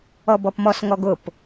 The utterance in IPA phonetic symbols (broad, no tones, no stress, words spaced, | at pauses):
ɔbɔpmɔs ŋɔɡʊp